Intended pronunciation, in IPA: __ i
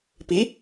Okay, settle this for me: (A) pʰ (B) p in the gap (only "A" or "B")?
B